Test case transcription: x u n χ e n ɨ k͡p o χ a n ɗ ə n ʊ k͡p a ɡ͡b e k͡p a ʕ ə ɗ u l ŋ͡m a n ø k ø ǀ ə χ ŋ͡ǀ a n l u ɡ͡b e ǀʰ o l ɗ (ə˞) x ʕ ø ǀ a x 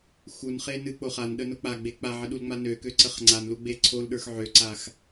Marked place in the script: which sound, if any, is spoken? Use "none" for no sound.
ə˞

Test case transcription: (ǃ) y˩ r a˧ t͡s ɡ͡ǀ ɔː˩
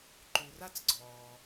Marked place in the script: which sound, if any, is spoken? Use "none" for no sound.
ǃ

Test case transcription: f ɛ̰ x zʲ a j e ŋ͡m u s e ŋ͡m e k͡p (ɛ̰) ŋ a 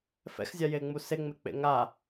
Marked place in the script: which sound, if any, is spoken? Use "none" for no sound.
ḛ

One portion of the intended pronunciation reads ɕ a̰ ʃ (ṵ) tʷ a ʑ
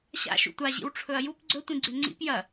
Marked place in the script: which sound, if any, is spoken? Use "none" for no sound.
ṵ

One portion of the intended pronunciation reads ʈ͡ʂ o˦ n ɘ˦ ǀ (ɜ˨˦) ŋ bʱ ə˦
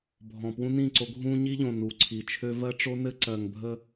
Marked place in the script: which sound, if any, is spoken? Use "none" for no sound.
ɜ˨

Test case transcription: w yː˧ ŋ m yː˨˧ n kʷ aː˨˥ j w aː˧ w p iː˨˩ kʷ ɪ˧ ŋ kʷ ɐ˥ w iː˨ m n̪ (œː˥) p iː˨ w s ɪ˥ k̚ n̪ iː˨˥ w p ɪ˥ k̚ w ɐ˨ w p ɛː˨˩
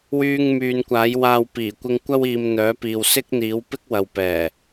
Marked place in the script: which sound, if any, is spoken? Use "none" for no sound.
œː˨˥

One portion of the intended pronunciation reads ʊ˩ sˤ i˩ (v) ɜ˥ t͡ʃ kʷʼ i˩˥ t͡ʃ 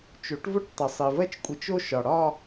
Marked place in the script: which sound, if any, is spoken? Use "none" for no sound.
v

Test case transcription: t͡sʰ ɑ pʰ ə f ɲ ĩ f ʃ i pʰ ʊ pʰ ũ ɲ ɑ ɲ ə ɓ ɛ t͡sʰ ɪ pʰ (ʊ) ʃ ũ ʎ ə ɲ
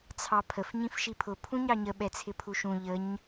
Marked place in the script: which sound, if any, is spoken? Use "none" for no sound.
u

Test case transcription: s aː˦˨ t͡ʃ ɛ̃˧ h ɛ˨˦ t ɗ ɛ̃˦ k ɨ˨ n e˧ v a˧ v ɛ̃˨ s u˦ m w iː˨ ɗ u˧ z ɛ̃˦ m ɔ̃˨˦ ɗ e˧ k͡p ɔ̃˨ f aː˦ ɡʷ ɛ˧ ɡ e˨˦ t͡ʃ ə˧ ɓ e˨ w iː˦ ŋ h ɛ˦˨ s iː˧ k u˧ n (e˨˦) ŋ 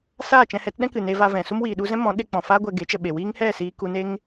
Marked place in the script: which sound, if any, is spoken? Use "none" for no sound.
e˦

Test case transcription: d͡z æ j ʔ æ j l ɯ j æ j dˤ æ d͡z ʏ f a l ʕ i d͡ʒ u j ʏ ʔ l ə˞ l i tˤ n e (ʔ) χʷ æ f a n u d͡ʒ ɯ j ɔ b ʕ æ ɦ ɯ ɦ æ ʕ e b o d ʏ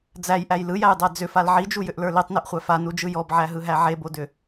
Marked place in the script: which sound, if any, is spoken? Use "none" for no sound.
ʔ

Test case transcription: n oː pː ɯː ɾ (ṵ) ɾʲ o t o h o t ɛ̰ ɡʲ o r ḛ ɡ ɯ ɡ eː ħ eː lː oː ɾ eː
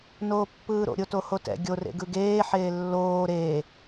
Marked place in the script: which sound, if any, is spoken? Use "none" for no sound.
o̰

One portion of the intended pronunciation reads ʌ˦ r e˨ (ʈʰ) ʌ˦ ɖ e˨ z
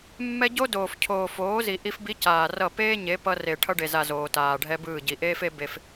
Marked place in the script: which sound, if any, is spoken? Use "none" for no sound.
ʈʰ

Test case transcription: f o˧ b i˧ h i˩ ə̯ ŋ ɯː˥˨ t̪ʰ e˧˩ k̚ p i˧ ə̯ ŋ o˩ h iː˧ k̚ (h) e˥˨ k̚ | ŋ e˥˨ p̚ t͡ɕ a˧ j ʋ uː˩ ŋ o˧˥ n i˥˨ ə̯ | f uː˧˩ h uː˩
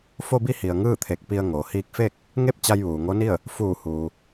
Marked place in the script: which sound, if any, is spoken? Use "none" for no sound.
f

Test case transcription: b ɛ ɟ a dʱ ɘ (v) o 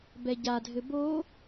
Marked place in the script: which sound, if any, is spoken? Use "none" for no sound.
b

